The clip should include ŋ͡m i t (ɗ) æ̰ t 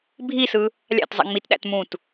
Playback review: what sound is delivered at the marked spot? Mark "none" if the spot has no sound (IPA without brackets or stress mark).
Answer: ɗ